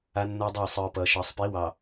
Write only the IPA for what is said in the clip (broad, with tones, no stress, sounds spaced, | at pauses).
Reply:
a˦ nː ʌː˦ dˤ ə˞˦˨ sˤ ɯː˨ p ʌː˨ ʃ ʌː˨ sˤ p i˨˦ w ɑ˨